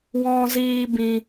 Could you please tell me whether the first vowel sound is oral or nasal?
nasal